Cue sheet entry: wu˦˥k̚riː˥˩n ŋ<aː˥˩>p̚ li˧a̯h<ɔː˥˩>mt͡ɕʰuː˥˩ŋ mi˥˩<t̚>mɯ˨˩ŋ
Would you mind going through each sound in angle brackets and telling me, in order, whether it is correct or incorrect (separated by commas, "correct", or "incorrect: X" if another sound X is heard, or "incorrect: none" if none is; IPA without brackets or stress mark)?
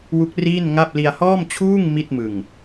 incorrect: a˥˩, correct, correct